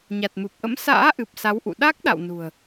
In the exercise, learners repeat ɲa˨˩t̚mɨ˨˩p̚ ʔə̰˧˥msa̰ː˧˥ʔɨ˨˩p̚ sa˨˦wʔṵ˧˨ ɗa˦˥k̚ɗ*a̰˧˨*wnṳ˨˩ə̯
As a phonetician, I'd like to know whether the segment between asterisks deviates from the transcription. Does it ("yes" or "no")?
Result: no